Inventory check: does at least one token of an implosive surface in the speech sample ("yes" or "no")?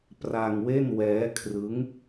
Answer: no